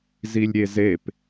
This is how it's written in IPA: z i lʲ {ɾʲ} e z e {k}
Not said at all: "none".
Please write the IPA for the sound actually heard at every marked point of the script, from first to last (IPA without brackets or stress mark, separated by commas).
ɾʲ, p